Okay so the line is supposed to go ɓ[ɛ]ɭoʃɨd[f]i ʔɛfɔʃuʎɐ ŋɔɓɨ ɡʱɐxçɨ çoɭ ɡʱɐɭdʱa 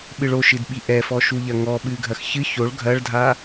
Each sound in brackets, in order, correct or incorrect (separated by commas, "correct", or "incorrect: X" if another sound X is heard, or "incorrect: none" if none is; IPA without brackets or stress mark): incorrect: ɨ, incorrect: ɓ